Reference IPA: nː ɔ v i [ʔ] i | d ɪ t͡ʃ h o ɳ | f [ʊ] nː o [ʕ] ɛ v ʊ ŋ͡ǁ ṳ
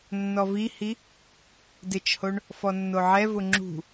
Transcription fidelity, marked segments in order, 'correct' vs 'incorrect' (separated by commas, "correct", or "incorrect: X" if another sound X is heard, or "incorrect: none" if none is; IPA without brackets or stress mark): incorrect: h, incorrect: ɔ, correct